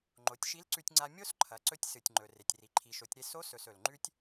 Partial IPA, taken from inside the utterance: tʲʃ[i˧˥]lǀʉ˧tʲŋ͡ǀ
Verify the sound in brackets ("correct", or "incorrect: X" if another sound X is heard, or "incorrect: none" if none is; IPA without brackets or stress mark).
correct